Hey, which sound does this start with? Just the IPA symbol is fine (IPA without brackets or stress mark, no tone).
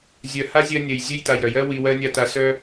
zʲ